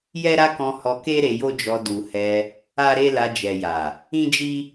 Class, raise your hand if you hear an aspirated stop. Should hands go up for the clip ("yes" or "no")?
no